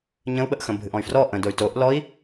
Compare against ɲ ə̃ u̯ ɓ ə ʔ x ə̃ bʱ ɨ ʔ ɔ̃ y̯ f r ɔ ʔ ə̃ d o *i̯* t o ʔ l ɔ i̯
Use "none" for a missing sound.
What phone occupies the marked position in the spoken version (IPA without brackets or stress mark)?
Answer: y̯